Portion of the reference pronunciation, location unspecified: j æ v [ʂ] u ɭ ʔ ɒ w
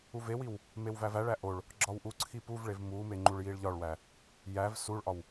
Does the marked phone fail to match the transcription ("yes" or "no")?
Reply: yes